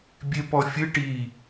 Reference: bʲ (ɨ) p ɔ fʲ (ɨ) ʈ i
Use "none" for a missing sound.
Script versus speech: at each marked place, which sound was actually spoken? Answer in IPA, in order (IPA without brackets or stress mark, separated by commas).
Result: e, ɨ